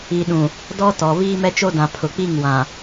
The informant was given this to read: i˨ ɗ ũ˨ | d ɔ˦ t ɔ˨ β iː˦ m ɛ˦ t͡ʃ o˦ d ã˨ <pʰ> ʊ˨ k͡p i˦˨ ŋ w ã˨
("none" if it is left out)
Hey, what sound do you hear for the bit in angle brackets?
pʰ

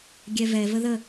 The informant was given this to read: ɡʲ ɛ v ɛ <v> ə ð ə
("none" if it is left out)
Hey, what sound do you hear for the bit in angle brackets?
v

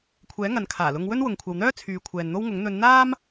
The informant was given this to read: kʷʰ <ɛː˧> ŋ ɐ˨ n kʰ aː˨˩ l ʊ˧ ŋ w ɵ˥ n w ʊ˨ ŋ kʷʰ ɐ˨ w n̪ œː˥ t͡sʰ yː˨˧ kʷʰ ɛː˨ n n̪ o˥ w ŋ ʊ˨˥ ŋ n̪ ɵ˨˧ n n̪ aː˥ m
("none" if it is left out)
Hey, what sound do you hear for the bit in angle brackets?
ɛː˨˥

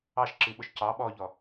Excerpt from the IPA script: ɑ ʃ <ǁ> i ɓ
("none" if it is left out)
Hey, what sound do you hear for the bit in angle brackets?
ǁ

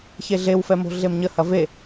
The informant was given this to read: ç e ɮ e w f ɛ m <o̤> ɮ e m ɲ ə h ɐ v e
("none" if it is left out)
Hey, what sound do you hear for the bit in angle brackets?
o̤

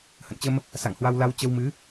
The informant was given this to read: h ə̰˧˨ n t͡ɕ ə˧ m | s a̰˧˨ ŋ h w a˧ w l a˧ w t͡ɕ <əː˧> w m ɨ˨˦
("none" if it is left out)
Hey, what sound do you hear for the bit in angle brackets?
ə˧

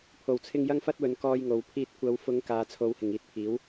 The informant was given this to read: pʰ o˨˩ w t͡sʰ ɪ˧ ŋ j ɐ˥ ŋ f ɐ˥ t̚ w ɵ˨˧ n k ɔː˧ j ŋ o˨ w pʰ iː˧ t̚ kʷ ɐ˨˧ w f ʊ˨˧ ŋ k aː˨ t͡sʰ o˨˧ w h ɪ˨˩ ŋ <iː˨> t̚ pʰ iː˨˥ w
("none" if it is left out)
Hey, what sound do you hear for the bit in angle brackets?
iː˧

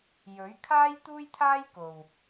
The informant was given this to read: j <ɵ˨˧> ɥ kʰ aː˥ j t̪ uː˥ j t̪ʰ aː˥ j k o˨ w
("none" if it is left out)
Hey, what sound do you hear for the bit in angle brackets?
ɵ˨˥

